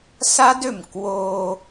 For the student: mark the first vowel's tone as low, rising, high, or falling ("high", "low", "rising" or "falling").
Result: high